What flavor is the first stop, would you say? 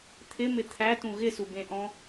aspirated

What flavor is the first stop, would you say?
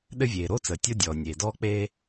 implosive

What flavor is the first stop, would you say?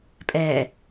ejective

